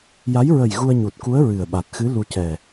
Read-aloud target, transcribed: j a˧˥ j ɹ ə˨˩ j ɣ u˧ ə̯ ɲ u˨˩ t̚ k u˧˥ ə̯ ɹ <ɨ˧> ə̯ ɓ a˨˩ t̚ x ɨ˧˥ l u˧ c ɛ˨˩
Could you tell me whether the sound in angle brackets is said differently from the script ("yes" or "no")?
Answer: yes